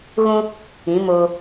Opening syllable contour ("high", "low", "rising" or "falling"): high